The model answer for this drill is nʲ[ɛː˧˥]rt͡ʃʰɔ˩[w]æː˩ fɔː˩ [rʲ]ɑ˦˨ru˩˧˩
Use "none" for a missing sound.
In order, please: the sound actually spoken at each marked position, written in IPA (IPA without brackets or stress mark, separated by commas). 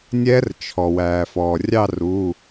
ɛː˧˥, w, rʲ